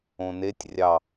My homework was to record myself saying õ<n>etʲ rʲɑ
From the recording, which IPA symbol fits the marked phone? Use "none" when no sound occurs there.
n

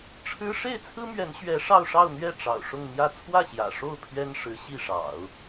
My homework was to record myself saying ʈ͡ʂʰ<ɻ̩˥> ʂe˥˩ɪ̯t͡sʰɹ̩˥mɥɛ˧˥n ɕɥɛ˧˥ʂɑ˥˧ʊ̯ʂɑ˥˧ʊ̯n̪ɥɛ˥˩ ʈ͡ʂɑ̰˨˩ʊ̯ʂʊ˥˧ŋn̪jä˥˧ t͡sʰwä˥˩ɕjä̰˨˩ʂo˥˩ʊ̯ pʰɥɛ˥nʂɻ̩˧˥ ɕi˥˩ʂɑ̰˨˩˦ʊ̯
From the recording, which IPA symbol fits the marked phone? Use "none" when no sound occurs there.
ɻ̩˥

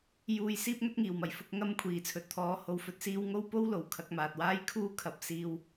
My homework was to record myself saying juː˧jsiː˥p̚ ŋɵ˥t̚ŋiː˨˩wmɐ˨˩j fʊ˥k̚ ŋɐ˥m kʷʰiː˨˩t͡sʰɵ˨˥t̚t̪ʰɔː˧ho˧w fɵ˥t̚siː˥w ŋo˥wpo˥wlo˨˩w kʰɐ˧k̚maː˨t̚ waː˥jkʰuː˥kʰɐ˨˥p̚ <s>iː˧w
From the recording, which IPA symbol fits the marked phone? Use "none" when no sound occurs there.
s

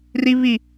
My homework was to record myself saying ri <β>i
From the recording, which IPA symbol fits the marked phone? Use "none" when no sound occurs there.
β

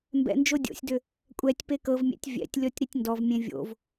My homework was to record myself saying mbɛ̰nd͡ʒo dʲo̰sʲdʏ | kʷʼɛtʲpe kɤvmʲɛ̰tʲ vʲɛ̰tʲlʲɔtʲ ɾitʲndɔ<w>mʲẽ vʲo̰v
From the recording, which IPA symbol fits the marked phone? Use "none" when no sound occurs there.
v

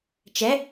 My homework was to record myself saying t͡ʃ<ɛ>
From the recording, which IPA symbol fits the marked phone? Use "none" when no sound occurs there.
ɛ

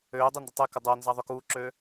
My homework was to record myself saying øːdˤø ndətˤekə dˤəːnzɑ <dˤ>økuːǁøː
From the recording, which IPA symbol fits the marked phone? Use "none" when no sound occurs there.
ðˤ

